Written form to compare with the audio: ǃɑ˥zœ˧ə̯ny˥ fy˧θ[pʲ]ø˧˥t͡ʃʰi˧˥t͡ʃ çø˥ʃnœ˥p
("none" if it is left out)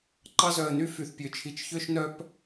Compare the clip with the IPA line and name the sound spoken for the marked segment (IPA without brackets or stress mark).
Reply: pʲ